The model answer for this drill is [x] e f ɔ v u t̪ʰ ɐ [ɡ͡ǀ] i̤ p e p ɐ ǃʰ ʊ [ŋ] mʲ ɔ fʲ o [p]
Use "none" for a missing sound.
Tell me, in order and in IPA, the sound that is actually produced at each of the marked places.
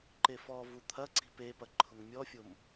ǃ, ǀ, ŋ, m

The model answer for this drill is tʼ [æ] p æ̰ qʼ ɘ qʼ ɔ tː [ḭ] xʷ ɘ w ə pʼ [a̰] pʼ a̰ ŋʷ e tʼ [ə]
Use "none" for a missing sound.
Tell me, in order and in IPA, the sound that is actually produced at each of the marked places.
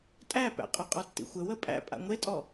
æ, ḭ, æ̰, ɔ

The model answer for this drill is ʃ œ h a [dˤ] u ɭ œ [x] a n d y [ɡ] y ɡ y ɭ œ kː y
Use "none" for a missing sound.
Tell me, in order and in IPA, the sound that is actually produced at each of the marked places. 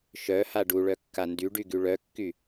ɖ, kː, ɖ

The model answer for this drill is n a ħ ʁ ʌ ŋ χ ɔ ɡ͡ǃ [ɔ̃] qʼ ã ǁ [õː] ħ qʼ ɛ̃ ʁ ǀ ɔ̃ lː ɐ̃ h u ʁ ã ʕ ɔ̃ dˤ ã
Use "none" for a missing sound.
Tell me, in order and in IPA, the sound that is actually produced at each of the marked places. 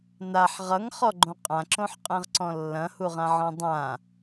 õ, õ

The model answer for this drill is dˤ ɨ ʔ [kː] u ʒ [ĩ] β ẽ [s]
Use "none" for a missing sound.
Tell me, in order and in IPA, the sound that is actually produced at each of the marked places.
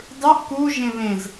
k, ẽ, z

